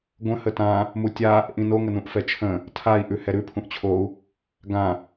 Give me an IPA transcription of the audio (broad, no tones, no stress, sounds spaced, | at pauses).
ɡʷ ə̃ h ə t ã | m u tʲ a | ʔ ĩ n o ŋ ə n ũ ʔ f ɛ t͡ʃʰ ə̃ | tʰ a i̯ ʔ ʉ h ɛ ɾ ʉ pʰ ũ ʔ t͡ɕʰ o u̯ | ɡ ã